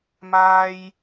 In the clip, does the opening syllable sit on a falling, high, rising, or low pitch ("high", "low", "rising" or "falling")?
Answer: high